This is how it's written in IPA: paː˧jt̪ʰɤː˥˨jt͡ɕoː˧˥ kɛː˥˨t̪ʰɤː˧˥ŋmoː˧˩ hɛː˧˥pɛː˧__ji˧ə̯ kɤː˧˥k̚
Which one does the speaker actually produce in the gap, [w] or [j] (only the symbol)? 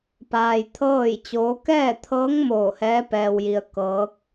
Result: w